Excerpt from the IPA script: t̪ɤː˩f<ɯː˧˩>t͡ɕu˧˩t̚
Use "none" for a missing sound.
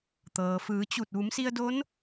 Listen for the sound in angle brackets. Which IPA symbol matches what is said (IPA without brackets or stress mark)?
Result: ɯː˩˧